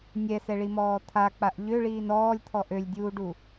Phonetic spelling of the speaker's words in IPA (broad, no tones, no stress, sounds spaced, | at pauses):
nʲ ɛ s ɛ ɭ i m ɔː t̪ʰ a k͡p a ʔ ʎ ø ɭ iː n ɔː lʲ t̪ʰ ɔ ʔ ø lʲ dʲ uː ɖ u